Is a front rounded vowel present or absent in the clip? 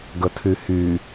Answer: present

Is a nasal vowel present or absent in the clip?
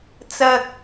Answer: absent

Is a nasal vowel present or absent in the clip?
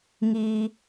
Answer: absent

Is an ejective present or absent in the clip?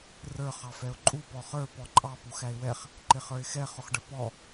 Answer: present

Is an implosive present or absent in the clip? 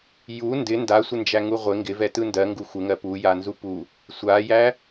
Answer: absent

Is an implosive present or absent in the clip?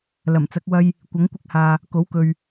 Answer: absent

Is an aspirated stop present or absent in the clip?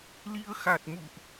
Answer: absent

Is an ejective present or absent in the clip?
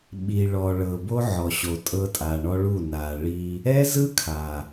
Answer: present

